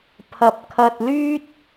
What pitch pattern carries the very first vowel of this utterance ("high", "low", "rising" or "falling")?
low